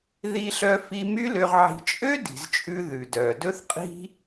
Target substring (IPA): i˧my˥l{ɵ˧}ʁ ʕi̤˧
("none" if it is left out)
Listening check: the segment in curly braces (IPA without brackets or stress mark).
ø˧